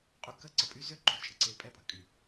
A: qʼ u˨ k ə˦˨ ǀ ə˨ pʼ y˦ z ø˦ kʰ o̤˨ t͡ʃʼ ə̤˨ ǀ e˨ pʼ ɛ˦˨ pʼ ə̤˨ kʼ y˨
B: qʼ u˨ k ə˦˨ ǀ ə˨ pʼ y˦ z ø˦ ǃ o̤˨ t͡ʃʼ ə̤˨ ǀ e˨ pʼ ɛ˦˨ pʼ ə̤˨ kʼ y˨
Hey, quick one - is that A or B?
B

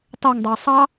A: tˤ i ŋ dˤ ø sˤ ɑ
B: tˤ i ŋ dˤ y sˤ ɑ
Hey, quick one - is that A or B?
B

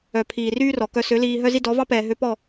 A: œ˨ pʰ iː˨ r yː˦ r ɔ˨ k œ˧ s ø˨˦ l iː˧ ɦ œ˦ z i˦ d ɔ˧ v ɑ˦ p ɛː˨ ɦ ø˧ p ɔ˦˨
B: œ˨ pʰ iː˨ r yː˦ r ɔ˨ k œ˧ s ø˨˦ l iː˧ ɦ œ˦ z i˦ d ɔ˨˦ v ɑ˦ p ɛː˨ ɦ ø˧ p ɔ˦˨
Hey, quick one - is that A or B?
B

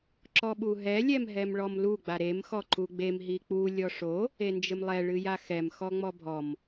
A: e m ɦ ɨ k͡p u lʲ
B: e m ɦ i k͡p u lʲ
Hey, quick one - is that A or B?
B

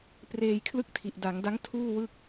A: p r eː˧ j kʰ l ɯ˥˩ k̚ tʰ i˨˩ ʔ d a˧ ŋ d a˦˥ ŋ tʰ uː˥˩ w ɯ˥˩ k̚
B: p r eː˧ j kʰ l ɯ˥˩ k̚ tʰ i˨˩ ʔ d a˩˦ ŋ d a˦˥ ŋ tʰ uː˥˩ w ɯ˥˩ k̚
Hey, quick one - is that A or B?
B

